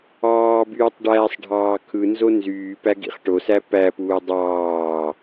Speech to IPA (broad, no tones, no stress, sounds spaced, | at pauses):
ɑː b yː tˤ ɖ æː sˤ ɖʱ ɑː kʰ ɯ n z o n z yː p æ ɡ ḭ χ ʈ o s æ p æ p uː dˤ ɑː